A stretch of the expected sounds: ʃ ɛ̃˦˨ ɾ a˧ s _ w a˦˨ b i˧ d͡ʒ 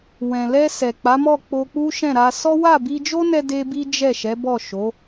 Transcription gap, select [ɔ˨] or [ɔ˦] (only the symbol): ɔ˦